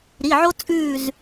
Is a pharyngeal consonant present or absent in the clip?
present